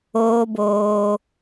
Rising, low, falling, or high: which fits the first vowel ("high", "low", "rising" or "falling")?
high